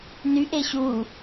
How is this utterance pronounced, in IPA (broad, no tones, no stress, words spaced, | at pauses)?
nyʔ eɕu